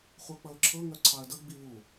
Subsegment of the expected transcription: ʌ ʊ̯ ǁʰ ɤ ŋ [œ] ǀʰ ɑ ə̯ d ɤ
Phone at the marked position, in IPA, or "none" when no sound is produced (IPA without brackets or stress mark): œ